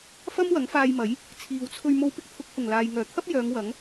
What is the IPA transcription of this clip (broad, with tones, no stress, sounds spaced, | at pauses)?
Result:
f ɐ˥ m w ɐ˨˥ ŋ f aː˧ j m ɐ˨˥ j | t͡sʰ iː˨ w t͡sʰ ɵ˧ ɥ m o˧ w p ɪ˥ k̚ t̪ʰ ʊ˨˥ k̚ h ʊ˨˩ ŋ l aː˨ j ŋ œː˨˩ t̪ʰ ɐ˥ p̚ j œː˨˧ ŋ w ɐ˨˥ ŋ